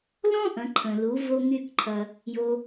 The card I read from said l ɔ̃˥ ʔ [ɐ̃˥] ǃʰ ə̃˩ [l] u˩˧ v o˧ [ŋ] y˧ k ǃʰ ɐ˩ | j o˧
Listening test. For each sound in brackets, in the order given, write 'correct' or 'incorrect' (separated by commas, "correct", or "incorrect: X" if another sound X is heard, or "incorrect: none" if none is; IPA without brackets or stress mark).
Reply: incorrect: ɐ̃˩˧, correct, correct